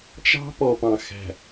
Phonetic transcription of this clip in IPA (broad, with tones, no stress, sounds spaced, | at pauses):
t͡ʃ ɑ̤˦ p ɔ˨ p ɑ̃˨ x æ̤˨